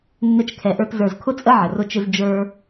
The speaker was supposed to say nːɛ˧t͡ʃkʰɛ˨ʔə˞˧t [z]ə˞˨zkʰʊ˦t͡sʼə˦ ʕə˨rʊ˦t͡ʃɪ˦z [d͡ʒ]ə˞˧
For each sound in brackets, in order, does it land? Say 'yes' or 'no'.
yes, yes

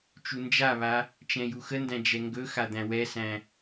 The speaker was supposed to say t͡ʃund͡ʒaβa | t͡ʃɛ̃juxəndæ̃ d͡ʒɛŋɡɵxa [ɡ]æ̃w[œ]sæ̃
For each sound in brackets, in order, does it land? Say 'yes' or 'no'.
no, no

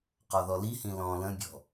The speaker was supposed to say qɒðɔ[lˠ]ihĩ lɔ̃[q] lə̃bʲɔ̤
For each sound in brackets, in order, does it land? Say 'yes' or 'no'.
no, no

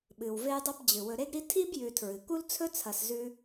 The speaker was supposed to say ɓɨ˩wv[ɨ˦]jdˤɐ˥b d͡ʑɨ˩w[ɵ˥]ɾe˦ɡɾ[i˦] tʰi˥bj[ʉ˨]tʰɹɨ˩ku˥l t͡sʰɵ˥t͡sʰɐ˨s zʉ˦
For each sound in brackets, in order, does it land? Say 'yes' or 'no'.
no, no, yes, yes

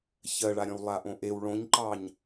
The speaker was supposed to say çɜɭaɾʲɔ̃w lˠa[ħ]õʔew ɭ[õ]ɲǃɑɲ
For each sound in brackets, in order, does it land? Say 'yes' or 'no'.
no, yes

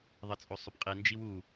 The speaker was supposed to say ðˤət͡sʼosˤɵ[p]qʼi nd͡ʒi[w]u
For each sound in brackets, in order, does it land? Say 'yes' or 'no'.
yes, yes

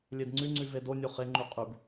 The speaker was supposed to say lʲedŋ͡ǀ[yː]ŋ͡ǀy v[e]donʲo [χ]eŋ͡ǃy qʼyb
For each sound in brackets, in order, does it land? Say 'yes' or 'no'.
no, yes, yes

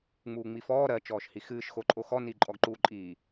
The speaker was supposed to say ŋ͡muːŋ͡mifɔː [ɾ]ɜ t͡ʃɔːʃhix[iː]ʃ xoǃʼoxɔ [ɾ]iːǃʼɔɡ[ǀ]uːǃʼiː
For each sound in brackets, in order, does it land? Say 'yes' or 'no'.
yes, no, no, no

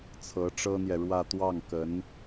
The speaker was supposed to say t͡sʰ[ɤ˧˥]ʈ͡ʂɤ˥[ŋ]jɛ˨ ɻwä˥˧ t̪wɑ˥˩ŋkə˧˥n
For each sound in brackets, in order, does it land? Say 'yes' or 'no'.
yes, no

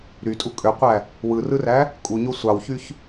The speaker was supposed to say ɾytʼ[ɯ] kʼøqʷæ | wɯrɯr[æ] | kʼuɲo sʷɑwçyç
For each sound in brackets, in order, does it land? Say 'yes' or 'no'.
no, yes

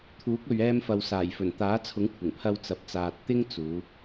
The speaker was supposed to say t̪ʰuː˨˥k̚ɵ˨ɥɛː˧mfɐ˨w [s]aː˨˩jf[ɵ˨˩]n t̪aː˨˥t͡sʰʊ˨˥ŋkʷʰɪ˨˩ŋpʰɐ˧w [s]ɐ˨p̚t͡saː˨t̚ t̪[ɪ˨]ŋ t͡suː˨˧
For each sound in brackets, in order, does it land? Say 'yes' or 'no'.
yes, yes, no, no

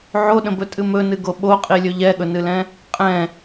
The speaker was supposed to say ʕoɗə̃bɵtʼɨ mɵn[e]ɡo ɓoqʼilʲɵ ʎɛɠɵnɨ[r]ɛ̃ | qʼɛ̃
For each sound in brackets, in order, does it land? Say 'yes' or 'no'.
no, no

